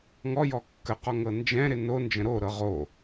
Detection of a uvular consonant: present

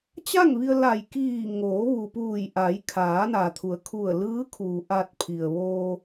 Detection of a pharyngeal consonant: absent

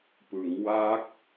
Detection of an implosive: absent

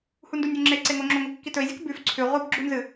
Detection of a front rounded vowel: absent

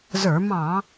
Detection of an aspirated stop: absent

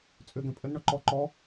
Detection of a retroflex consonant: present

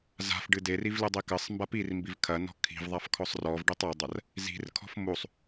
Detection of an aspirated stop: present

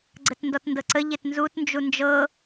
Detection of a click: present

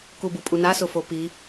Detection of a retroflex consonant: absent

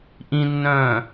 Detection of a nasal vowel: present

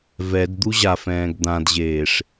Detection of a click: absent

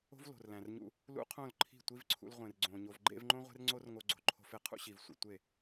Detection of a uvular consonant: present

